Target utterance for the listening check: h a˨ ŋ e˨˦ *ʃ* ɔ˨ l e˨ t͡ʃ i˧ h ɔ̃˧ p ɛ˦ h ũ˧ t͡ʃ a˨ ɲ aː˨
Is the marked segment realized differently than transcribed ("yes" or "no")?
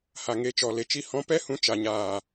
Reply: yes